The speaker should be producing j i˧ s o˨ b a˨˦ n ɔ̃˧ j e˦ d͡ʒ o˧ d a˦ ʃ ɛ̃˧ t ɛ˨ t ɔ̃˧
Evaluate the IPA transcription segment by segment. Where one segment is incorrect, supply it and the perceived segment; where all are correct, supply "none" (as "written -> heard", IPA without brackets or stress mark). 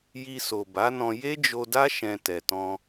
none